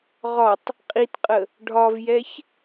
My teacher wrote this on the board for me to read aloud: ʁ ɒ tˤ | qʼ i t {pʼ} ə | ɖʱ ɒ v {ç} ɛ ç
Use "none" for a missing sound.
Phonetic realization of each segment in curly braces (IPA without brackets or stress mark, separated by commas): qʼ, j